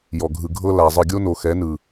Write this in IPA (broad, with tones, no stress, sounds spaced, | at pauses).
j ɔ˨ ɡʱ ɯ˨ ɡʱ ɤ˦ l a˨ zˤ ɯ˨ ɡʲ o˦ n o˨ x ɛ˨˦ n ɯ˨